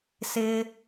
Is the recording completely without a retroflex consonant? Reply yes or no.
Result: yes